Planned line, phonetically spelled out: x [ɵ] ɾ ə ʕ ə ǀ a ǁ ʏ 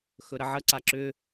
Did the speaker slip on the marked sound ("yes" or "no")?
no